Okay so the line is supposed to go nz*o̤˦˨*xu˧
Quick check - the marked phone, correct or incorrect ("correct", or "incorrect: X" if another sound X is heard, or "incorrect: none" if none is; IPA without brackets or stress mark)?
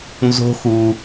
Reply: incorrect: o̤˦